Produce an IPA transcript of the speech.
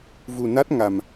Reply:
v u˧ n a˦˥ t̚ ŋ a˧ m

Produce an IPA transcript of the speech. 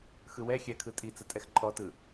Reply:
x ɯ w ɛ xʲ ɛ kʰ ɯ tʼ i t͡s ə tʼ ɛ x ǃʼ ɔ t ɯ

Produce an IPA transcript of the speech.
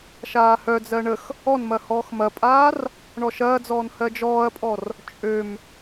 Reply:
ʃ aː h œ d͡z ɜ ɳ ə x | ɔ n m ɐ h ɔː x m ɐ pʼ aː r | ɳ ɔ ʃ ɐː d͡z ɔː n h ɜ d͡ʒ ɔː ɐ̯ pʼ ɔ r | t͡ʃʼ ø m

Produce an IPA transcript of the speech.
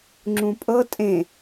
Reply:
ŋ͡ǁ ũ pʼ ɤ tʼ ẽ

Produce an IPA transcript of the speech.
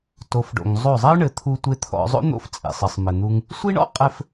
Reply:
t o˨˦ f ɖ o̰˨ ŋ zˤ o˦˨ zˤ ɐ˦ ʊ̯ ɳ ɘ˨ t̪ʰ u˧ tʷ e˧ t̪ʰ ɔ̰˧ zˤ o̰˦ n̪ o̰˧ f t͡sʼ ḛ˨ sˤ ɘ˨ sˤ m ɘ˨ n̪ u˧ ŋ | sʷ i˦ ɳ ɔ̰˦ qʼ ɘ˧ f

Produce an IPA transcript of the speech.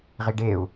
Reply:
ʁ i ɖ e u̯

